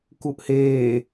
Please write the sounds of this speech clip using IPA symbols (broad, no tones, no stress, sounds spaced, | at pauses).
k u ʔ h eː